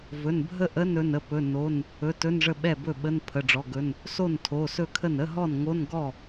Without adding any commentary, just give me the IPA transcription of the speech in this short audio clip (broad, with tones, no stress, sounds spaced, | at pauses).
v ɵ˩˧˩ n bʱ ə˥˩ ʔ ə˧˥˧ n ɵ˩˧˩ n ə˥˩ p ɵ˩˧˩ n o˩˧˩ n | ɵ˩˧˩ t ɵ˧˥˧ n ʐ ə˥˩ ɓ ɛ˥˩ b ɵ˥˩ ɓ ə˧˥˧ n pʰ ə˩˧˩ ɖ͡ʐ ɔ˩˧˩ ɡ ɵ˩˧˩ n | s o˥˩ n tʰ o˩˧˩ s ɵ˥˩ kʰ ə˥˩ n ə˧˥˧ ɦ ɔ˥˩ n ŋ o˧˥˧ n ɡ ɔ˥˩